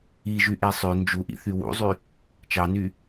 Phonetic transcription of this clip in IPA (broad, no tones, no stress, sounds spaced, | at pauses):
i ʒ y ʔ e sˤ ø n d͡ʒ u ʔ ḭ θ y w ṵ zˤ y | t͡ʃ ɑ n y